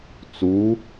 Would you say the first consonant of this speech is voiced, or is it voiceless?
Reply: voiceless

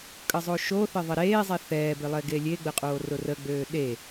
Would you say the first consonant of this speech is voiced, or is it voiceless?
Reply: voiceless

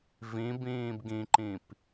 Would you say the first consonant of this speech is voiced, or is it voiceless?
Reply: voiced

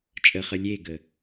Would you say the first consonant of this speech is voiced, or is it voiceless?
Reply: voiceless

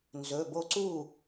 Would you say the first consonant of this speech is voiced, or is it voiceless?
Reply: voiced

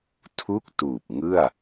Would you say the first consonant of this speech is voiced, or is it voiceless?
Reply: voiceless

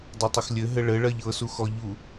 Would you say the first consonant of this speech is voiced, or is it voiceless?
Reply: voiced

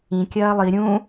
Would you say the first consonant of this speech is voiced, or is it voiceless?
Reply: voiceless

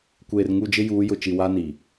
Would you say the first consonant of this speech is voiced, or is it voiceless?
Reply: voiceless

